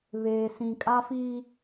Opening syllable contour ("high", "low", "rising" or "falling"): low